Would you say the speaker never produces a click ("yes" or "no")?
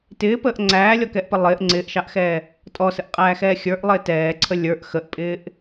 no